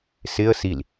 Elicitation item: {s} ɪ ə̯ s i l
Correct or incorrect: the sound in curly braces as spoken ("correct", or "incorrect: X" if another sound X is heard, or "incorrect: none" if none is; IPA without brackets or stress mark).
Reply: correct